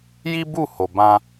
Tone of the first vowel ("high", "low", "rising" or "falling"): high